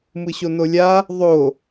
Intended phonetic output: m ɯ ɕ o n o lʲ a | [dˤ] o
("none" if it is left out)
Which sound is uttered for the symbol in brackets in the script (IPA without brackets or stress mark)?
ðˤ